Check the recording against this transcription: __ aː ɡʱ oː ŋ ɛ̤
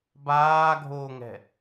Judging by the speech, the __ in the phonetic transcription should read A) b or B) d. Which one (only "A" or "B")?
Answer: A